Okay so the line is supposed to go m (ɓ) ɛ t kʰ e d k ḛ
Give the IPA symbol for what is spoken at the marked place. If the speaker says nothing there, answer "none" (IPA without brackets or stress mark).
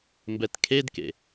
b